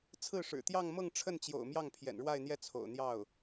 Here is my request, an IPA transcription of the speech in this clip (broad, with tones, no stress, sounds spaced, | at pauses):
t͡sʰ ɹ̩˥˩ ʂ ɻ̩˨˩ t̪ j ɑ˥˧ ŋ m ɤ˥˧ ŋ ʈ͡ʂʰ ə˥˩ n t͡ɕ j o̰˨˩ ʊ̯ m j ɑ˥˩ ŋ pʰ j ɛ̰˨˩ n ɻ w a˥˧ ɪ̯ n̪ j ɛ˥˩ t͡sʰ o̰˨˩ ʊ̯ n̪ j ɑ˥˩ ʊ̯